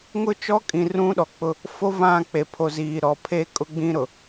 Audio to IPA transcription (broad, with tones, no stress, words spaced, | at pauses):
ŋʊ˦t͡ʃɔ˦kʼĩ˨ rũ˦ɗɔ˨k͡pʊ˦ | fo˦vã˦˨ k͡pe˨pʰo˨ziː˨ɾɔ˨ pʰe˦kʼʊ˦ɡ͡bĩ˦ɾʊ˨